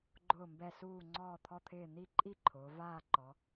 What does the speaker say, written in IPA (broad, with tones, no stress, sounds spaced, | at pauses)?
ɡ͡ǃ ʊː˥˧ m b ɛ˥˧ s uː˥˧ ŋ͡ǀ ɔː˥˧ t̪ʰ ɔ˥˧ t̪ʰ ɪː˥˧ n̪ i˥˧ ǃʼ i˥˧ ǃʰ ʊː˩˧ v aː˥˧ ǃ ɔ˩˧